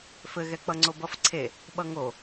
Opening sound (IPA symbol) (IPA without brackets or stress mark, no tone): f